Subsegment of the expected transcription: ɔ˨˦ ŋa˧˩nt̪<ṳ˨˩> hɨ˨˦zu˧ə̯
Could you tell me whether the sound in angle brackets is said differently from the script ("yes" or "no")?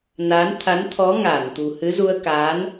no